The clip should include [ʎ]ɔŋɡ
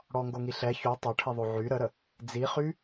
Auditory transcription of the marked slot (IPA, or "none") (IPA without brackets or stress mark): ɽ